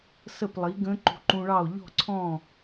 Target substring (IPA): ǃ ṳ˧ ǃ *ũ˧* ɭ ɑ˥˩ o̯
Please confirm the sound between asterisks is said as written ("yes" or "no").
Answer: yes